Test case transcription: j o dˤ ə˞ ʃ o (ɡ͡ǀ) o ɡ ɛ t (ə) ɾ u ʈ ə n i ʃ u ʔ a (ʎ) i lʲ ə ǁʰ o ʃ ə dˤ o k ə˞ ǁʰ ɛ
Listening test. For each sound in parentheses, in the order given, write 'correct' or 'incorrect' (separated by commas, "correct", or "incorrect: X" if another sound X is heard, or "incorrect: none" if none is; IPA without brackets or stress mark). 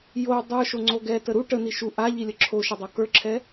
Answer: incorrect: ŋ͡ǀ, correct, correct